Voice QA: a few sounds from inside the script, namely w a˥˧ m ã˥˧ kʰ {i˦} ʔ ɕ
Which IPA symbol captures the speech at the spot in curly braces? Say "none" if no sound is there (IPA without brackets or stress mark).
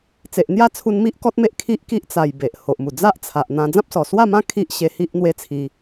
i˦